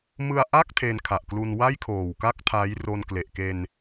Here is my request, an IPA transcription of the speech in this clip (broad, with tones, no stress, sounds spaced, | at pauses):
m ɯ˧ a̯ ʔ a˥˩ k̚ tʰ e˧ n kʰ a˨˩ ʔ k l u˧ n w a˥˩ j kʰ oː˨˩ w k a˥˩ k̚ tʰ a˦˥ j r o˧ n k l e˨˩ ʔ k e˧ n